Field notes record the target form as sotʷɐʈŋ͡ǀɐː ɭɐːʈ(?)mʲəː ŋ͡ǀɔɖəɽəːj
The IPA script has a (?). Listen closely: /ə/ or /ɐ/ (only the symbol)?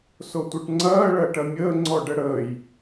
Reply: ɐ